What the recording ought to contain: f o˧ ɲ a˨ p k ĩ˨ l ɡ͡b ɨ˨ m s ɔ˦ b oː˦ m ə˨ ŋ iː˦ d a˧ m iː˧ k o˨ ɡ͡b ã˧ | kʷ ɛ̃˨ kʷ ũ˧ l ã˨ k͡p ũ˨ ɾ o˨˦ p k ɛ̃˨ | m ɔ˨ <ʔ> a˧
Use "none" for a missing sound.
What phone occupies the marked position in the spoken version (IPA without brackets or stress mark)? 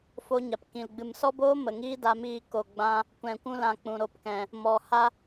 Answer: h